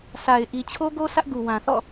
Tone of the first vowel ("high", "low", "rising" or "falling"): low